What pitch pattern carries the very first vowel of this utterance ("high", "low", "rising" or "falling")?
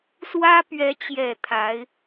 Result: high